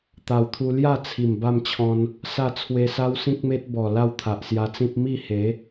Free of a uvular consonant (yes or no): yes